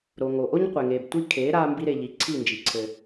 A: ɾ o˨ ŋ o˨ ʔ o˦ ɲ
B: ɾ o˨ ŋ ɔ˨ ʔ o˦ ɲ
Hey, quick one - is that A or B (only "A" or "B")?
A